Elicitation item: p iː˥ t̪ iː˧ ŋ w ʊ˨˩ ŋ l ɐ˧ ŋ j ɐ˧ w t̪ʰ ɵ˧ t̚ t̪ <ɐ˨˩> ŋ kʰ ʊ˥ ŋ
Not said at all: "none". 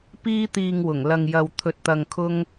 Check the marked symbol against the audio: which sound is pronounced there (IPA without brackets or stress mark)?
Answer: ɐ˧